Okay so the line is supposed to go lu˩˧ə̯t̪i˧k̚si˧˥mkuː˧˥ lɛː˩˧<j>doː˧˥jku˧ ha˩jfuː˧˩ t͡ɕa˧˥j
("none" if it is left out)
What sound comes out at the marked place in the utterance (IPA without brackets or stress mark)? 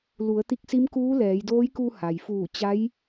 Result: j